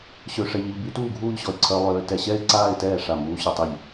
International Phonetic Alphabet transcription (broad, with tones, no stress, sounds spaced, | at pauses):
ɕ ø˧ ʂ ɛ˧ ʎ i˧ ʎ b y˦˥ t uː˥˧ ɡʱ uː˥˧ ʎ ɕ ɔ˧ ɪ̯ ǀʰ œ˦˥ lˠ øː˦˥ t ɛ˧ ɕ ɛ˥˧ ɪ̯ ǀ aː˥˧ ɪ̯ t ɛː˥˩ ʂ a˥˩ m uː˦˥ ɕ y˧ tˤ e˥˩ ʎ